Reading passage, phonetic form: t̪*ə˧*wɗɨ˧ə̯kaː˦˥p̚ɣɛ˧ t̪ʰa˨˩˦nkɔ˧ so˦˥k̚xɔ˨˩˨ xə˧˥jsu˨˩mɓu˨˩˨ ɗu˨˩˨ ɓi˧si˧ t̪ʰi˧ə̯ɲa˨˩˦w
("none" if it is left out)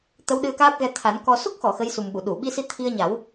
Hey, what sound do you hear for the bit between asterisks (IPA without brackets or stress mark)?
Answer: ə˧˥